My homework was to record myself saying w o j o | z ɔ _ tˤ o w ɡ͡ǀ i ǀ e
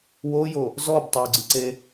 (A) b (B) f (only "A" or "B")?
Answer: A